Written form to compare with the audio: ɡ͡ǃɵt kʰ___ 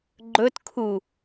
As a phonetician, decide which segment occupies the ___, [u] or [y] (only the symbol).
u